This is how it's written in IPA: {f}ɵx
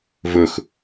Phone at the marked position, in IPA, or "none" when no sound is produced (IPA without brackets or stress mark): v